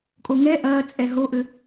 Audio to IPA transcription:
kʼoŋɛ ʔɐːt͡sʼɛ ɦoʔø

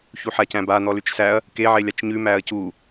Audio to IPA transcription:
çuħacæ̃ba n̪ɔlʉt͡ʃsæɐ̯ | keʕe lʲat͡ʃɲʉ mæɐ̯cu

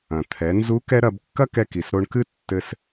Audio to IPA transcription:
ɐ̃˩ t̪ʰɛ˩˧ nzu˧˥ kɛ˥ ɾɐ˧b kːɐ˥kɛ˧ki˩s ɾo˧ɳkɨ˥ tːɘ˥s

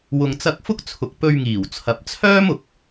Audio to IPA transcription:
wʊ˨ŋt͡sɐ˧k̚ fʊ˥k̚t͡sʰʊ˨k̚ pɵ˧ɥŋiː˨˩wt͡sʰɐ˨p̚ t͡sʰœː˥mʊ˨k̚

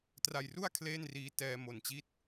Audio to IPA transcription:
tra˧jru˥˩a̯ kʰleː˥˩nriː˦˥ tɛː˧ mo˨˩nt͡ɕi˦˥t̚

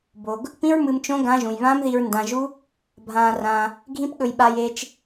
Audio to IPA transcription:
bo˨ɡ | pĩ˦ɹmɨ˧mt͡ʃõ˦ ɡã˦ ʒũ˨jβãː˦mði˧ɹ ndã˧ʒu˦ | bʱãː˧rãː˧ | ɡʱĩ˦pɠɵ˧jɓa˧j eː˧t͡ʃ

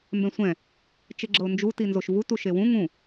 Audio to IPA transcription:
mbɛ̃sʷɛ̃ | t͡ʃeɡ͡ǁɤʊ̯nd͡ʒu tinzoʃvu tuʃewũ ŋũ

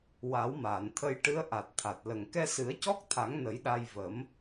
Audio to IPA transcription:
wa˨˩˦wmaː˨˩˨nt̪ʰə˧jʈɨ˧˥ə̯ ʔa˨˩t̚t̪ʰa˨˩t̚lə˨˩ŋ kɛ˧sɨ˨˩˦ə̯cɔ˦˥k̚t̪ʰa˨˩˦ŋ nə˨˩˦jɗa˧j və˨˩˦m

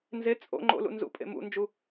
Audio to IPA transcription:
nze t͡sʼo̰ ŋ͡ǃo̰lṵ nzṵpʼḛ mṵnd͡ʒu

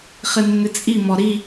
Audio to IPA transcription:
χɪnːɪt͡sʼi mɔɾi

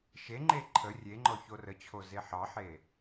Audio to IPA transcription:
ʃeŋ͡ǃe ǃʰə rʲeŋ͡ǃɔ çorət͡ɕʰo zeħɑħe

